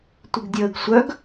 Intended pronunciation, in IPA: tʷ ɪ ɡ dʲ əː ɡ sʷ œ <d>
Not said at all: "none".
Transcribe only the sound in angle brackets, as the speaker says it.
ɡ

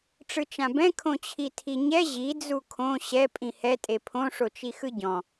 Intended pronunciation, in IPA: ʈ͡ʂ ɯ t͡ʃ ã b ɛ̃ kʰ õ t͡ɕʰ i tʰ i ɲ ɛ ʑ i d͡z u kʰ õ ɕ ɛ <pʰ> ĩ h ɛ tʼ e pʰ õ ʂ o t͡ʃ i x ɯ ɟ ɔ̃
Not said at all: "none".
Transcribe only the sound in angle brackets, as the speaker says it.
pʼ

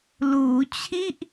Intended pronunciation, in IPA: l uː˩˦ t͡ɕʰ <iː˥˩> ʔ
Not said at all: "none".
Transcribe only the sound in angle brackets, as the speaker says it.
i˥˩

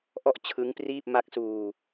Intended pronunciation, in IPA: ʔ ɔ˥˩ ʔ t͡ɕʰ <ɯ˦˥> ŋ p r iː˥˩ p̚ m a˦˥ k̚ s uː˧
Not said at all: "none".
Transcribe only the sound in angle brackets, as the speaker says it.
ɯ˦˥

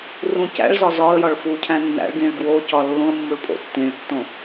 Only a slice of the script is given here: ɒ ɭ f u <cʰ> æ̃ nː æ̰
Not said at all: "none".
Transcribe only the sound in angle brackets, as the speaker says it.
cʰ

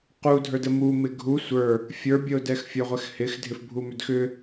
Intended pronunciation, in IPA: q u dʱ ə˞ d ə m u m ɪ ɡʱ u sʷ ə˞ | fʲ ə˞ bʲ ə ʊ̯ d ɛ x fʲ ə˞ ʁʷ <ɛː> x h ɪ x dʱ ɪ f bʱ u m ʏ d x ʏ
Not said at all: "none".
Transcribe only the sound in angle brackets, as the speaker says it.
ɛ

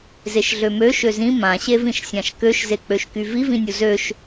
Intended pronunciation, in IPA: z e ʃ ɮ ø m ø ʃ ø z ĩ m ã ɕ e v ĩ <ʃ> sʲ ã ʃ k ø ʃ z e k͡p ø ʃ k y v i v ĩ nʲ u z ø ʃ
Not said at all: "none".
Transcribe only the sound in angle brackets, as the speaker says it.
ʃ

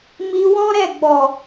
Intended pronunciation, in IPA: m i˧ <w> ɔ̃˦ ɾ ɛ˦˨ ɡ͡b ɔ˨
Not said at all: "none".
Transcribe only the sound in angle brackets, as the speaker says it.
w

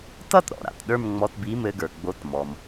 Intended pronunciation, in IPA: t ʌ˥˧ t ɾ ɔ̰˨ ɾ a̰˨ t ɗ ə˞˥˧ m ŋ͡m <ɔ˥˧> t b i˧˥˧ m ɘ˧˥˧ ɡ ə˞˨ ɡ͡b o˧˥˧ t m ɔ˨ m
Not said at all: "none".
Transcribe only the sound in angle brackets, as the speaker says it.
ɔ˧˥˧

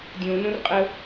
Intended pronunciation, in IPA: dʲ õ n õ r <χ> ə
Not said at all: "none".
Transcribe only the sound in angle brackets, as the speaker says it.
qʼ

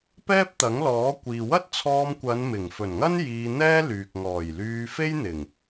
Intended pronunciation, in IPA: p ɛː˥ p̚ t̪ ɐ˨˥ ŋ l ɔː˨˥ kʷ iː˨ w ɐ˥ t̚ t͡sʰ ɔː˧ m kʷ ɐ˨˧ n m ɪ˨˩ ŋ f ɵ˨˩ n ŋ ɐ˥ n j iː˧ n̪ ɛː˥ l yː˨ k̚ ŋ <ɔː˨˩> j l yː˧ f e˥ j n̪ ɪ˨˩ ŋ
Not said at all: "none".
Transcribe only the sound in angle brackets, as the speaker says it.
ɔː˨˩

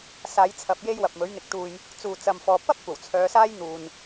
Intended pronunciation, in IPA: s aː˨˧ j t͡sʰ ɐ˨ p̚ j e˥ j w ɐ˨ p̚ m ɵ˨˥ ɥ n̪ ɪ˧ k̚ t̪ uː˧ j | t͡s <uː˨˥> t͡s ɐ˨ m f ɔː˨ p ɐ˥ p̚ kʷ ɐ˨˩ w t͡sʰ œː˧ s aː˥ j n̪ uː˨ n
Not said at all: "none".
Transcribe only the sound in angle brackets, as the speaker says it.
uː˨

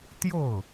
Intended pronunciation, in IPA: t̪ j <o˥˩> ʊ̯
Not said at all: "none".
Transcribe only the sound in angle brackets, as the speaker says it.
o˥˩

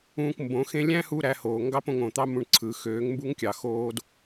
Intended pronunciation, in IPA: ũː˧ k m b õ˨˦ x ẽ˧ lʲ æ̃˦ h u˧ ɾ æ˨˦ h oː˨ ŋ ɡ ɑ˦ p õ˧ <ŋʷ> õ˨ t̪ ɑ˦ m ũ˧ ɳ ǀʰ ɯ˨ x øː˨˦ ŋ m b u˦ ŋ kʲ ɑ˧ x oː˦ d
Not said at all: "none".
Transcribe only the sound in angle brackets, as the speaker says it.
ŋ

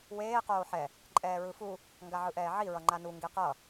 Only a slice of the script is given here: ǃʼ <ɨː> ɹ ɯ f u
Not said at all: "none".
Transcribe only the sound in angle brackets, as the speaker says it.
ɛː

